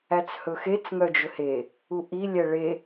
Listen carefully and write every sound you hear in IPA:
æ t͡s h ɵ x e t͡s ŋ œ d͡ʒ ɵ h e | u ʔ i lʲ ɛ ɭ e

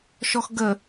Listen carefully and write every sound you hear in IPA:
ʃ ɔ x ɡ ə

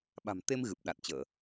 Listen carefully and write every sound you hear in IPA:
ɓ a̤˨˩ m t̪ e˧ m ɣ ɨ˨˩ p̚ ɗ a˨˩ t̚ t͡ɕ əː˧˩˨

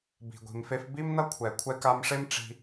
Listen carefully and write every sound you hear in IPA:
b i̤˩ ɡʷ i̤˩ m f e˧ f b i˥ m n ʌ˥ kʷʰ ɛ˩ kʷʰ ɛ˧ k a˧ m ʂ e˥ m ʈ͡ʂ i̤˧

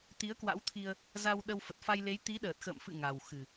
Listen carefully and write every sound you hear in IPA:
t̪ i˨˦ ə̯ k w a̰˧˥ w t̪ʰ i˧ ə̯ | z a˧ w ɗ ə˧ w f ə˨˩ t̚ f a˧ j l e˨˦ j t̪ i˨˦ ɗ əː˨˩ t̚ x ə̰ː˧˨ m f ɨ̰˧˨ ŋ a˨˩ w x ɨ˨˩

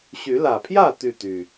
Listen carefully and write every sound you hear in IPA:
ɕ y˨˦ l ä˨˩ pʰ j ä˥˨ t̪ y˥˨ t̪ y˨˩

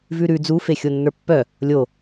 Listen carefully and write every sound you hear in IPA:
v ʉ ɾ ʉ d͡z u f e xʲ o nː ə˞ pː œ | lʲ o

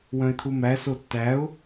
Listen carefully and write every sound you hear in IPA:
w œ̃ ɪ̯ t̪ʰ u m æ s o tː æ ʊ̯

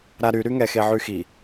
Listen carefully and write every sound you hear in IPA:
ɾ a ɾ y ɾ y ŋ ɛ x e ʕ y x i

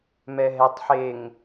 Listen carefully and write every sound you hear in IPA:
m ɛ ɦ ɛ tˤ ħ e ŋ

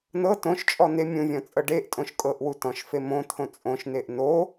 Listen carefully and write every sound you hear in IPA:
n ɤ t õ ʃ t͡ʃʼ ɔ n̪ e mʲ ũ vʲ ɔ̃ t͡sʼ ɤ ɖ e ʔ tʼ õ ʃ kʼ ɤ ʔ w u t ɔ̃ ʃ f e m õ t̪ʰ õ t͡sʼ õ ʃ n e ʔ n o

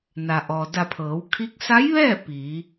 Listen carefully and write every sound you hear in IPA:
n a˩ ʔ ɔː˩ d a˧˩ pʰ ɤː˩˧ w kʰ iː˧˥ k̚ s a˧˥ j ʋ ɛː˥˨ p iː˩˧

